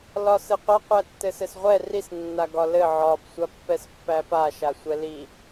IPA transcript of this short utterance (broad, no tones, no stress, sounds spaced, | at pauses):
l ɒ s ɘ qʷ a qʷ æ tː ɘ s ɘ s ʁʷ ɛ r i s nː a ɡ ɒ l ɘ ʕ ɒ b sʷ a pː ɛ s pː æ p a ʃ a sʷ ɛ l i